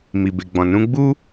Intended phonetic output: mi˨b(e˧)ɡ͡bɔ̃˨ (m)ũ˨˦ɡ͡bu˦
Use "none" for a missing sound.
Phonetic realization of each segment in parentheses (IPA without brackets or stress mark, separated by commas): e˨, n